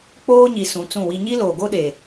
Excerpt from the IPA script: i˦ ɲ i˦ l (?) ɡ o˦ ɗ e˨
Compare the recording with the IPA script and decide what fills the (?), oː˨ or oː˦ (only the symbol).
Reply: oː˨